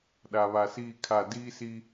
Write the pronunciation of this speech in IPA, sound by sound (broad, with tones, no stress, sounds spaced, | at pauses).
ɗ a˨ β a˨ s iː˦˨ kʰ a˦˨ d iː˦ s i˦